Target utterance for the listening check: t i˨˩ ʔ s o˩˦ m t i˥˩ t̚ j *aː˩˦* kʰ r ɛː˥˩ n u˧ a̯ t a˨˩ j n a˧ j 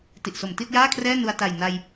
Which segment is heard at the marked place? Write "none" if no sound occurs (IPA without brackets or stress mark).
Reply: aː˥˩